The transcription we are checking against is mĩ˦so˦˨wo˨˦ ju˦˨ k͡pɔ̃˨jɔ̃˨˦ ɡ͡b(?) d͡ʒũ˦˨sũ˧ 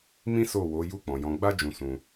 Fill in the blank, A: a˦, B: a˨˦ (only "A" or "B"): A